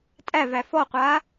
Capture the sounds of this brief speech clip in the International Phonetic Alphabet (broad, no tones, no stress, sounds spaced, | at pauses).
tʼ æ v æ f ɔ qʷ aː